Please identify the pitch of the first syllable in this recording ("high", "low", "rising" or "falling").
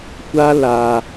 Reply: high